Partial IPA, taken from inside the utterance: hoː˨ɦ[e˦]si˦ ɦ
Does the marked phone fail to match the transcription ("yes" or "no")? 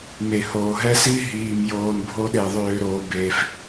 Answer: yes